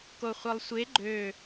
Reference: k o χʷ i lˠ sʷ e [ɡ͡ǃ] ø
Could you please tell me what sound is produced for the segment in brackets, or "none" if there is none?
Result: ɡ͡ǃ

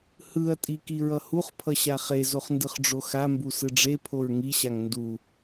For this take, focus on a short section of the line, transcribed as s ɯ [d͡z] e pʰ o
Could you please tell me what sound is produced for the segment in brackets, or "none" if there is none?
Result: ɖ͡ʐ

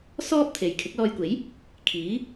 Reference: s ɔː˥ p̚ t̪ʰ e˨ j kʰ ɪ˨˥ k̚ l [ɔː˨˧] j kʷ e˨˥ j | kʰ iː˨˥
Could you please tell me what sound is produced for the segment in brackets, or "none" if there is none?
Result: ɔː˧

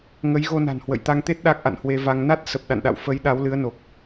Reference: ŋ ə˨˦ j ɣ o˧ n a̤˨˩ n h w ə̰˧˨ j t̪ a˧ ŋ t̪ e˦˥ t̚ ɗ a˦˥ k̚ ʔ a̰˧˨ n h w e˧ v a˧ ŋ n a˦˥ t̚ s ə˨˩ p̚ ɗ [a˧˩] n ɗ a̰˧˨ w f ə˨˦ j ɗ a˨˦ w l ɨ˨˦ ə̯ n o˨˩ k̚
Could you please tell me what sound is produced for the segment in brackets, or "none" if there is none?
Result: a̰˧˨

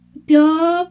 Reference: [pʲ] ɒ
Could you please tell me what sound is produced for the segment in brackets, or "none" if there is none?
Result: pʲ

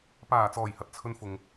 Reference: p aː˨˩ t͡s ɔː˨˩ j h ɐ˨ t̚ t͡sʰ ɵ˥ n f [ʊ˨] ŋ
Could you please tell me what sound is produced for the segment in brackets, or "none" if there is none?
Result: ʊ˨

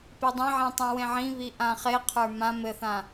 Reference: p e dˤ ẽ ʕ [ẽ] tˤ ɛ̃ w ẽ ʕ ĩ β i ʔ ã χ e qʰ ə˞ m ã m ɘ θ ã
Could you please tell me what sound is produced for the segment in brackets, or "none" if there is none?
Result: ẽ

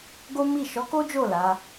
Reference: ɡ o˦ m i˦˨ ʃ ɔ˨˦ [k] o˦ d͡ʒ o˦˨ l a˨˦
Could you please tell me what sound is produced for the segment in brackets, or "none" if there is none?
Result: k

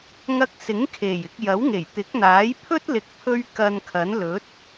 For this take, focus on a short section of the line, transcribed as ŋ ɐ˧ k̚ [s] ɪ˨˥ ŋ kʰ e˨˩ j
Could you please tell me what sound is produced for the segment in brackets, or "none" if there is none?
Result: s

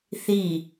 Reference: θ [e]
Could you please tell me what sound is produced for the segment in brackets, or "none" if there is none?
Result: i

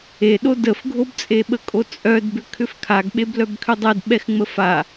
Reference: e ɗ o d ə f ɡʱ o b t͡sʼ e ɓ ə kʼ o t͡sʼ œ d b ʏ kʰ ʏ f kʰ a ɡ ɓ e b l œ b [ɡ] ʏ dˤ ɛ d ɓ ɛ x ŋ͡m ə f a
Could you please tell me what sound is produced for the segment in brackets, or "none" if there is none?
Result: kʰ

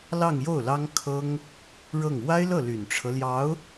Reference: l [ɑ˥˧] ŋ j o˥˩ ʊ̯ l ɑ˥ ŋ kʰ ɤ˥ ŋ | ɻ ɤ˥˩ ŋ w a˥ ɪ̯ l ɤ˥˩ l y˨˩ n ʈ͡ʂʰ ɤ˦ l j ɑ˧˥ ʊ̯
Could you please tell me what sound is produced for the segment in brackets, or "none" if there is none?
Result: ɑ˥˧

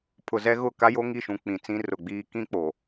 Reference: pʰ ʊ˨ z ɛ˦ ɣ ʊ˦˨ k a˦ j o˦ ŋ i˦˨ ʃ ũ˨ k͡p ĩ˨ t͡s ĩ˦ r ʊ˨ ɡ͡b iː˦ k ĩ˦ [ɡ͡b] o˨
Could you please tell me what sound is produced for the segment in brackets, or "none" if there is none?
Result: k͡p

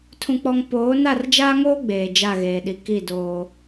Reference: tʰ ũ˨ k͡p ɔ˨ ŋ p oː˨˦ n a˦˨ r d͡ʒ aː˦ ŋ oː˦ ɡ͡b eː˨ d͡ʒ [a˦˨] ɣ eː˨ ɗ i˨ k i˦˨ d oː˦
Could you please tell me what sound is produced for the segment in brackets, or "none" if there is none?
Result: a˦˨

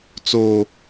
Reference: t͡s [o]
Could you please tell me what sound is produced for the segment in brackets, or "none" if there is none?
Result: o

